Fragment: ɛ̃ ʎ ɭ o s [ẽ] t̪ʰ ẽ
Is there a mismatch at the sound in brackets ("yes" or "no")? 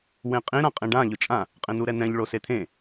yes